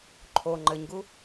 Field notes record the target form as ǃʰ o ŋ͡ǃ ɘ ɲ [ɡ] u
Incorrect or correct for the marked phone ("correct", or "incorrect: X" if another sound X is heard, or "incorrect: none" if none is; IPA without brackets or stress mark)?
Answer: correct